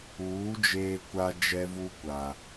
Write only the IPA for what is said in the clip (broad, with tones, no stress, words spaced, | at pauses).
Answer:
uː˨˦ d͡ʒeː˦kʷa˦d͡ʒɛ˦vu˦ kʷa˨